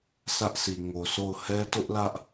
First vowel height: low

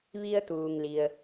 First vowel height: high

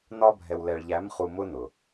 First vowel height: low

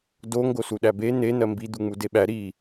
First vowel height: mid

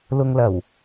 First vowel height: high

